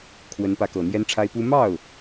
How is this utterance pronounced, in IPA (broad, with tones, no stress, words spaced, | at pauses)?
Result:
kʰwə˧˥npä˧˥kɤ˨˩ n̪jɛ˥nʈ͡ʂʰa˥ɪ̯pu˥ mɑ˥˩ʊ̯